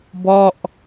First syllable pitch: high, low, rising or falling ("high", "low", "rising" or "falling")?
falling